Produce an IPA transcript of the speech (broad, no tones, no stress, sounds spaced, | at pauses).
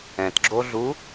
ɛ̃ t ɡ͡ǁ o ɮ u